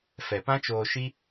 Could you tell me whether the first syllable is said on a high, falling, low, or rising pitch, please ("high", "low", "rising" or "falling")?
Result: low